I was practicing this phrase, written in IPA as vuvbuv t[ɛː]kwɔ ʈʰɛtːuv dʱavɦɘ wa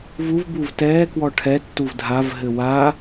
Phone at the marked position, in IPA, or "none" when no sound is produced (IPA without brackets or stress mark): ɛː